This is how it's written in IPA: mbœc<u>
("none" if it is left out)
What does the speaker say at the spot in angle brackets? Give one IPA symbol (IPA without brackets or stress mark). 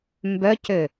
ø